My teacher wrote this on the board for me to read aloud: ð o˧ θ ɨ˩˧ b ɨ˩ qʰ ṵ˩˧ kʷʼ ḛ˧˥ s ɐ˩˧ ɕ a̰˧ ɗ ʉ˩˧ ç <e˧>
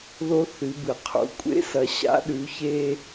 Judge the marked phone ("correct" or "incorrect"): correct